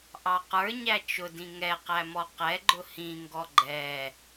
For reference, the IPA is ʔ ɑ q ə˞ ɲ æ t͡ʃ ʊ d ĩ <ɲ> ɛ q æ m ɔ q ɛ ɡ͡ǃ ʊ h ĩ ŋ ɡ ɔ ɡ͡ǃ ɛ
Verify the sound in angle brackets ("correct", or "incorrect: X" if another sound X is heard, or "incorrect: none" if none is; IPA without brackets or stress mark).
incorrect: ŋ